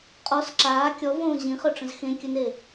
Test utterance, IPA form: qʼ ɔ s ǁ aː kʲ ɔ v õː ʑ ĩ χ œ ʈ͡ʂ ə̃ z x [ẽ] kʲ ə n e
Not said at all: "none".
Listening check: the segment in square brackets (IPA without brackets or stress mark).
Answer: ẽ